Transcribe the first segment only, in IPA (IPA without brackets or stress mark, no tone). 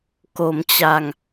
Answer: k